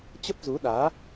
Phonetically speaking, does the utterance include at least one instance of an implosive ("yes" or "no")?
yes